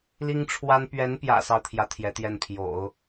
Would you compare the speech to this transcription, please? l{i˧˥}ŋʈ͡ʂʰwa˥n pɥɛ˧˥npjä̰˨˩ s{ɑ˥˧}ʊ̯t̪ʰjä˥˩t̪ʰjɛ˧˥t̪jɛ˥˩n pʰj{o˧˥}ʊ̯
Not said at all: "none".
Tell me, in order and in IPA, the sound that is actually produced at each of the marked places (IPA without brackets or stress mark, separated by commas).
i˥, ɑ˥˧, o̰˨˩˦